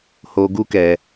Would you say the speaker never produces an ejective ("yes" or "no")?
yes